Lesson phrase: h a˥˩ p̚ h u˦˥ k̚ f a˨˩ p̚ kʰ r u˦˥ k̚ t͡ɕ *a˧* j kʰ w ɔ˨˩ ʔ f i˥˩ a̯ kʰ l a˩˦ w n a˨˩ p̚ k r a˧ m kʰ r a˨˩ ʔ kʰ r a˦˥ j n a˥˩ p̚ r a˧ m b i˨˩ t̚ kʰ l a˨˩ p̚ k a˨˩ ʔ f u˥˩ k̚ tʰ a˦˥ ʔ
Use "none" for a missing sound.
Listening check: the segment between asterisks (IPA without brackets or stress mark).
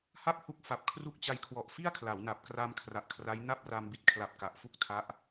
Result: a˧